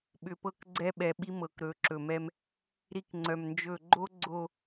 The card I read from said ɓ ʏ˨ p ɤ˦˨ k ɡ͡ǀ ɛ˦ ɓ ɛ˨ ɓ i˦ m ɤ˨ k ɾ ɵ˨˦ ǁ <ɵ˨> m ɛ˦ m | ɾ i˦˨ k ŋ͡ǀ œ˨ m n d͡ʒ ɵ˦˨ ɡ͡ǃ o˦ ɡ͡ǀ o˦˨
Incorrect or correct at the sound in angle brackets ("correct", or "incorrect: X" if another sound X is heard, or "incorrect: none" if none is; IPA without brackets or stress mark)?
correct